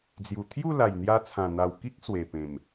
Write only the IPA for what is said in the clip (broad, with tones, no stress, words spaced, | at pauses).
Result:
d͡zju˨˩t̪ʰju˥˧la˨˩j n̪ja˧t͡sʰã˨˩n̪a˨˩wki˦k̚ swe˨˩pẽ˨˩m